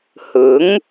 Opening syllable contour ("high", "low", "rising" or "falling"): rising